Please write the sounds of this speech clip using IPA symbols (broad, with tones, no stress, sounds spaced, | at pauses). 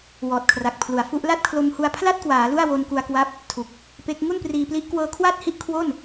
w ɔː˨˩ t̚ kʰ r a˨˩ k̚ pʰ l u˩˦ a̯ f u˦˥ ʔ l a˥˩ t̚ kʰ l o˧ m h u˧ a̯ pʰ l a˥˩ t̚ k w aː˩˦ l u˥˩ a̯ w o˧ n k u˧ a̯ k w a˦˥ p̚ | tʰ u˨˩ k̚ | p e˦˥ k̚ ŋ u˥˩ n p r iː˧ p l i˦˥ ʔ k w ɤː˧ kʰ w aː˥˩ t̚ h i˦˥ ʔ kʰ w o˥˩ n